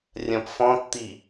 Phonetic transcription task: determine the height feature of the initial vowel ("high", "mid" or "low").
low